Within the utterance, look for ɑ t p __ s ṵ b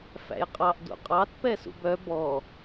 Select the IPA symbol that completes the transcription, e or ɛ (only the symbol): ɛ